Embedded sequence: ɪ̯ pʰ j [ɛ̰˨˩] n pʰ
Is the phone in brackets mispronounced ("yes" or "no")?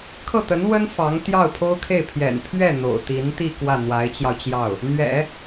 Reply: no